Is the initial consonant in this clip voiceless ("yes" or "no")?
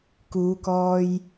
yes